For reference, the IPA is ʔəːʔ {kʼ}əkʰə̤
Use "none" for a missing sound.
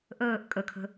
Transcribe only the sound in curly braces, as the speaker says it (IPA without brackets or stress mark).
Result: kʼ